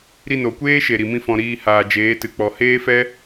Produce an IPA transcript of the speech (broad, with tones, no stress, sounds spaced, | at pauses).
ɾ i˧ n o˨ kʷ eː˦ ʃ e˨ ɾ i˨ m ĩ˦ f ɔ̃˧ ɾ iː˧ h aː˨ d͡ʒ eː˨˦ t ɨ˨ k͡p ɔ˨ h eː˦ f ɛ˦